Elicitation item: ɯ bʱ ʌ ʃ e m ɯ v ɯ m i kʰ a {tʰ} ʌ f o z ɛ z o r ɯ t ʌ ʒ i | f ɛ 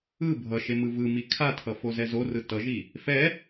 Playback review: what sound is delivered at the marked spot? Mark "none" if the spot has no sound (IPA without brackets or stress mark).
tʰ